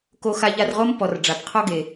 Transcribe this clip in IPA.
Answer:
k o˦ x a˦ ʎ a˦ r ʁ o˥ m p ɔ˨ r ɖ͡ʐ a˨ p qʰ ɔ˦ ɡ e˨

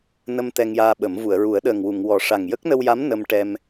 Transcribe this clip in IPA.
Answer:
n ə˧ m t̪ ɛ˧ ŋ j aː˧ ɓ ə˨˩˦ m v u˨˩˨ ə̯ ɹ u˨˩˦ ə̯ ɗ əː˨˩ ŋ w u˨˩˨ ŋ w ɔ˨˩˦ ʂ a˨˩ ŋ j ə˦˥ k̚ n ə˧ w j a˧˥ m n ə˧ m ʈ ɛ˧ m

